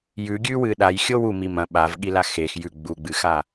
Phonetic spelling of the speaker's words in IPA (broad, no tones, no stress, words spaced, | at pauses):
jʉɡʲʉwɨ ɗajxʲo wumi mɐ̃ ɓavɠila xex jʉ ɡ͡buɡ͡bɨxa